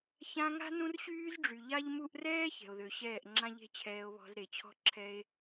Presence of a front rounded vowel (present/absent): present